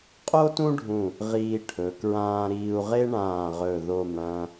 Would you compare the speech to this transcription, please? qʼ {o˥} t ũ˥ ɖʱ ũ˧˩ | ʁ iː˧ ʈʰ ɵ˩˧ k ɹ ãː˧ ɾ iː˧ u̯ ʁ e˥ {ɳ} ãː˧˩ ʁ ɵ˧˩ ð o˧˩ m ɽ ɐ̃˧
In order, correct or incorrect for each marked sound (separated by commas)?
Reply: correct, correct